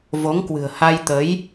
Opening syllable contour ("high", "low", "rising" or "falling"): rising